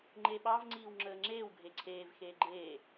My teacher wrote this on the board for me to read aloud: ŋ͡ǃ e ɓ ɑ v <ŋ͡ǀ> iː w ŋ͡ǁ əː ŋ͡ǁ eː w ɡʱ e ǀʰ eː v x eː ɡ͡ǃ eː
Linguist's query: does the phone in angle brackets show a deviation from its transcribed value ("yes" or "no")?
no